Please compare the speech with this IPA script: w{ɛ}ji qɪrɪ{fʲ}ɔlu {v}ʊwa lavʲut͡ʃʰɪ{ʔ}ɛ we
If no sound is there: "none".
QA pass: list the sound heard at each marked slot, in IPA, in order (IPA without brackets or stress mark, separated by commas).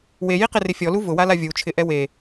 e, fʲ, v, ʔ